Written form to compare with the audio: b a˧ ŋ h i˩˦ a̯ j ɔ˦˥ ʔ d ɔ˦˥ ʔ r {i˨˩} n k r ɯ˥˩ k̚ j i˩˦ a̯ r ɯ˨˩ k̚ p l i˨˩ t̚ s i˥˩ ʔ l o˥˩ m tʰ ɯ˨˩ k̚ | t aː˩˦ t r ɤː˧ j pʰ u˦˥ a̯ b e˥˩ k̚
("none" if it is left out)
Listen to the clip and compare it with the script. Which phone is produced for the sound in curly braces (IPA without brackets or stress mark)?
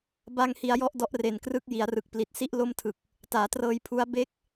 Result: e˨˩